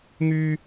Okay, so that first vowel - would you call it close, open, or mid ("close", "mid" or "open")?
close